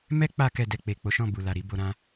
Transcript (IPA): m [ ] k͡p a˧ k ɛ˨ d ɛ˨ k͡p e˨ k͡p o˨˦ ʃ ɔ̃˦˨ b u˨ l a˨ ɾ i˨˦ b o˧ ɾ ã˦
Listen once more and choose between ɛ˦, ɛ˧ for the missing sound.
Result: ɛ˦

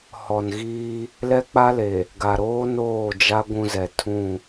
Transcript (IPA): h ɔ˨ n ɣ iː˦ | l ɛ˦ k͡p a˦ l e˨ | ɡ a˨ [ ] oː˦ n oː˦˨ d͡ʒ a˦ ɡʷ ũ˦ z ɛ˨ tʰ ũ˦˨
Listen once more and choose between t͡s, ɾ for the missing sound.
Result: ɾ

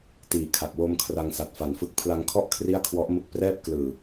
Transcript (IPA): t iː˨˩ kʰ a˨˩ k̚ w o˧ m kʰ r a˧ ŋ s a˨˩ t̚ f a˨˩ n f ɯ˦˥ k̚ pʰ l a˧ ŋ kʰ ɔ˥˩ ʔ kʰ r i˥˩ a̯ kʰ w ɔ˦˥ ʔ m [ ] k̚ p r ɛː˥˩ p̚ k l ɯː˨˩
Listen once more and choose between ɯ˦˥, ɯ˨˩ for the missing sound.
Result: ɯ˦˥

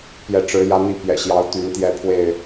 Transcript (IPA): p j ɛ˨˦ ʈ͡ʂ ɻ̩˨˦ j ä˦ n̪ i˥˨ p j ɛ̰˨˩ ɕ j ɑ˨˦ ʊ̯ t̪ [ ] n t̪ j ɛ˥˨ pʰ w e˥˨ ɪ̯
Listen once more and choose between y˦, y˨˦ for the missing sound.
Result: y˨˦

